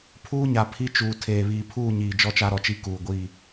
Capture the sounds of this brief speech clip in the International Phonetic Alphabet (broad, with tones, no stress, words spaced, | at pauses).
pʰuː˦ɲa˨ pʰi˦t͡ʃuː˨ tʰeː˨βiː˨ pʰuː˦˨ɲiː˨ d͡ʒɔ˦t͡ʃa˦ɾɔ˨t͡ʃi˦ kuː˨ɡʷi˦˨